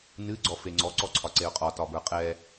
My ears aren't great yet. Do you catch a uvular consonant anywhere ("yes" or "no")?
yes